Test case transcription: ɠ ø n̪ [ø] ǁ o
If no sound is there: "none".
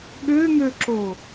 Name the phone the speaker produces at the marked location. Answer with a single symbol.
ø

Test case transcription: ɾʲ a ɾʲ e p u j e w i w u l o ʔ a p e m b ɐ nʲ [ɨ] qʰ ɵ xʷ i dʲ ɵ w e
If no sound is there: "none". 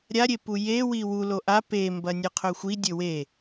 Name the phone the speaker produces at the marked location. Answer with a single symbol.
ɨ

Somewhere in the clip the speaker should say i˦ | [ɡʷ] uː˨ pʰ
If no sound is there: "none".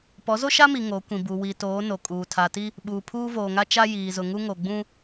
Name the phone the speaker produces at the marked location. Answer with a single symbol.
ɓ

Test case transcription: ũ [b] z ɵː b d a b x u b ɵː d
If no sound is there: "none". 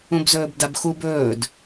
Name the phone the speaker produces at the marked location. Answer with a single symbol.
b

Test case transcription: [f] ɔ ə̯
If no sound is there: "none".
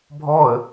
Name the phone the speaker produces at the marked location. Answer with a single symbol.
bʱ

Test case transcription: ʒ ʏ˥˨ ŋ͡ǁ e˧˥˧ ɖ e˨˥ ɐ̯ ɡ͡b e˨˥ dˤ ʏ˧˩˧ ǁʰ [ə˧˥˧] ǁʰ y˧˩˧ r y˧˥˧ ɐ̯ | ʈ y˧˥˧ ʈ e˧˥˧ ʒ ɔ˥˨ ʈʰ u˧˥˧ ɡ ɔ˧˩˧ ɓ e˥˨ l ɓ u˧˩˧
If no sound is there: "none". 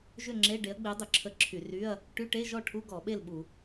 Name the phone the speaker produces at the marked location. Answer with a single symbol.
ə˧˥˧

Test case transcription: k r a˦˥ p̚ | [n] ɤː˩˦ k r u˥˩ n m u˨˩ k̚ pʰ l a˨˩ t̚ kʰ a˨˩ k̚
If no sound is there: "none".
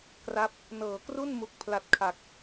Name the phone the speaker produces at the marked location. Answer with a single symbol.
n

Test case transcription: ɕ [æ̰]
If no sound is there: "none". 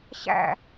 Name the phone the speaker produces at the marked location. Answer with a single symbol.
æ̰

